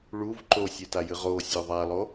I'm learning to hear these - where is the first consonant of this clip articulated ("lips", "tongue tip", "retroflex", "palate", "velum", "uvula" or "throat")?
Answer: retroflex